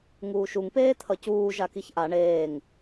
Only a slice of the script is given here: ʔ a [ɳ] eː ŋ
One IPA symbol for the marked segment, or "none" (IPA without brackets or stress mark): ɳ